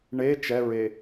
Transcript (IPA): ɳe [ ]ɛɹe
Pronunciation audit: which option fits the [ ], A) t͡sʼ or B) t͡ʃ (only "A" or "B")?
B